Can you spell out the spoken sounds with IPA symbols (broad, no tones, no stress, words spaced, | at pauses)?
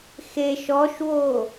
xeʃ ɔʃwo